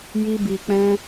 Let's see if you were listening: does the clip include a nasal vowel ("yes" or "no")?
yes